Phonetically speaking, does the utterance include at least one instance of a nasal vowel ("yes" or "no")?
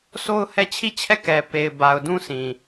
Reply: yes